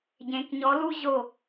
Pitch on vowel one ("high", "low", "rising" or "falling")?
rising